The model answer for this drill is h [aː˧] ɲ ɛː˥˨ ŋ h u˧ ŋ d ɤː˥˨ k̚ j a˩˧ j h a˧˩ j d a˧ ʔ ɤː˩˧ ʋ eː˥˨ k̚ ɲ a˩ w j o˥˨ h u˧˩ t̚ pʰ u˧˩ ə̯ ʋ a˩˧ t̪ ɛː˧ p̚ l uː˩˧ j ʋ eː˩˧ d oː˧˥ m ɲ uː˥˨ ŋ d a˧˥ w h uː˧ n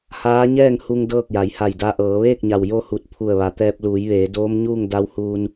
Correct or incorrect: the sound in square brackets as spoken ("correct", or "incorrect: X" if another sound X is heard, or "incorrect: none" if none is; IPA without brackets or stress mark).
incorrect: aː˧˥